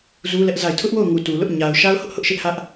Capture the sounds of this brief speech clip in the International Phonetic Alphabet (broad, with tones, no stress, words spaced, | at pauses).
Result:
zu˦lɛ˦ʔza˦˨ɪ̯ tʰʊ˦ʔwo˦˨ʊ̯ŋu˨ tu˨lʊ˦ʔ ɲa˨ʊ̯ ʃa˦ʊ̯hʊ˦ʔ hʊ˦ʔʃɪ˦ʔ hä˦ʔ